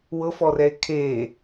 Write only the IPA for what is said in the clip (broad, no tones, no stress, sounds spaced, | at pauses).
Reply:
w ɤ f ɔ r ɛ e̯ kʰ e